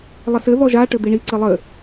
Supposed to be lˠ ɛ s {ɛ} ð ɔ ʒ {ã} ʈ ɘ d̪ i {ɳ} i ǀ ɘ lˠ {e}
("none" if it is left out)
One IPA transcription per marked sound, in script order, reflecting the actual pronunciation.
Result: ɘ, a, ɳ, ɘ

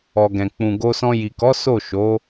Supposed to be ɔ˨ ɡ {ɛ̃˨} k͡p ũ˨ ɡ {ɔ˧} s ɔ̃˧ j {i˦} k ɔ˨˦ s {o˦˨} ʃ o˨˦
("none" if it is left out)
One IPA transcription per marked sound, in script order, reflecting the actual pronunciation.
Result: ɛ̃˨, o˧, i˨, o˦˨

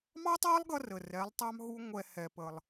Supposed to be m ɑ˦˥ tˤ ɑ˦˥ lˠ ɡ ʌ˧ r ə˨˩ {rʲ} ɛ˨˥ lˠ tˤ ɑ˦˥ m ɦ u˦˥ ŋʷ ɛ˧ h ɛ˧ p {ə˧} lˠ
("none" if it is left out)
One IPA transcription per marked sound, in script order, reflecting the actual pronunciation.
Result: r, ə˧

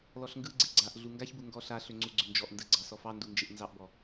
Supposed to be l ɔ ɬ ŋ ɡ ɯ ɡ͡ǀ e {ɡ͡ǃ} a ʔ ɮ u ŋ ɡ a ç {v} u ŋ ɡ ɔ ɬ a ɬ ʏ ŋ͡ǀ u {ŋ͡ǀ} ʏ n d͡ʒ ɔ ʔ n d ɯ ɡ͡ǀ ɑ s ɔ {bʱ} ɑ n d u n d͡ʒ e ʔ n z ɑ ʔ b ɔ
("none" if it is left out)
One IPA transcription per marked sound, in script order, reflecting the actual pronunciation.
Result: ɡ͡ǀ, b, ɡ͡ǀ, f

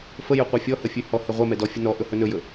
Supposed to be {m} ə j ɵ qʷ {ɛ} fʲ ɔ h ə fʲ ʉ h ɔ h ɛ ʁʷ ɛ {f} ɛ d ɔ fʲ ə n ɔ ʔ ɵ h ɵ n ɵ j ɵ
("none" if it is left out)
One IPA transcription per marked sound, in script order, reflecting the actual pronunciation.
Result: f, ɛ, m

